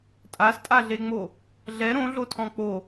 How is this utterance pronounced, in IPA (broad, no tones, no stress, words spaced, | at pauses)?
tʼastʼaɮeŋ͡mo | ɮɛ ɾõɮo tʰɔ̃k͡po